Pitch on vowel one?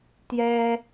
high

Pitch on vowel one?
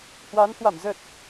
rising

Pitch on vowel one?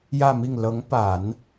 falling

